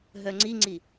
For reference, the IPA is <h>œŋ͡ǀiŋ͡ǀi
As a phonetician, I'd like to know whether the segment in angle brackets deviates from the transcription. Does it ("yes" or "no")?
yes